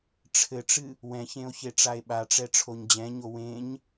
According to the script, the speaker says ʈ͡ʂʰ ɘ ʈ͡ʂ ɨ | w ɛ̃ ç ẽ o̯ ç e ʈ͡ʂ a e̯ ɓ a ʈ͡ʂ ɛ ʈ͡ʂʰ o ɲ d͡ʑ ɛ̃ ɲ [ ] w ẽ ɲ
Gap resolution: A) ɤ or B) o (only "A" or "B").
B